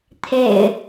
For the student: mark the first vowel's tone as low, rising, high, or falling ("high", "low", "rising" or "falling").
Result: low